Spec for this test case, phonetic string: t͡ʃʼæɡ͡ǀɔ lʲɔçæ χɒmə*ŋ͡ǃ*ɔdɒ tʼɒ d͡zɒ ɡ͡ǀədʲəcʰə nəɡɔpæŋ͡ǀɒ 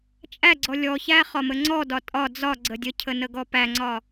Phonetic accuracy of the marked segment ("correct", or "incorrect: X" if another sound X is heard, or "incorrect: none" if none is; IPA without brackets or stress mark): incorrect: ŋ͡ǀ